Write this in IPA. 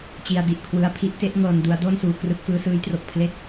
t͡ɕ i˧ a̯ d i˨˩ ʔ kʰ w ɯ˦˥ a̯ pʰ i˦˥ ʔ t e˥˩ ʔ ŋ ɤː˧ n d u˦˥ a̯ d o˥˩ n s uː˧ k r ɯ˦˥ k̚ f ɯː˦˥ s ɯː˦˥ j t r o˨˩ k̚ pʰ l e˥˩ k̚

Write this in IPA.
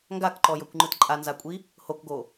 ŋ ɡ a k ǃ ɔ j ɤ kʷ ŋ͡ǃ ɯ t ǃʼ a n z a kʷʼ i | h o k ɡ o

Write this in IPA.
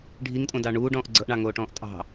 ɖʱ i ŋ tʼ õ d ɑ ɳ uː ɖ ɔ̃ː ʔ ɡ͡ǀ ɤ ʔ ɳ ɑ ŋ oː ʈ ɔ̃ː ʔ tʼ ɑ̤

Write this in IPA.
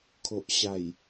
kʰ o˨ ʔ ɕ a˨˩ j

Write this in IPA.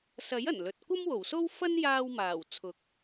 s ɐ˨˥ j ɐ˨˩ n l ɵ˨ t̚ kʷ ɐ˥ m w o˨˩ w s o˥ w f ɐ˥ n j aː˧ w m aː˨˩ w t͡sʰ ʊ˨ k̚

